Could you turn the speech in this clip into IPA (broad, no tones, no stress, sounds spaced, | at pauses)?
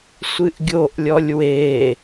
sʷ ɨ ʔ ɡʲ o ʔ lʲ ɔ lʲ w e